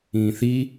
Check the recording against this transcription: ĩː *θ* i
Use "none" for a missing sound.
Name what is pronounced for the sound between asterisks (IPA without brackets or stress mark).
θ